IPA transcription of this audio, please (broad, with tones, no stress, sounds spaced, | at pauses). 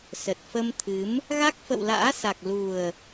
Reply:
s ə˨˩ t̚ f ə˧ m t̪ʰ ɨ˨˦ m | ɣ a˦˥ k̚ f ə̰˧˨ w l a̰ː˧˥ s a˨˩ k̚ l u˨˩ ə̯